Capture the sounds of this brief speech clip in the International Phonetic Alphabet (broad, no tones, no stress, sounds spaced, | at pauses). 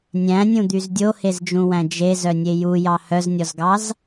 nʲ æ̃ nʲ ũ d̪ y z dʲ o h e z d͡ʒ ũ w æ̃ d͡ʒ e z œ nʲ e j u j ɑ h œ z nʲ ɔ z ɡ ɑ z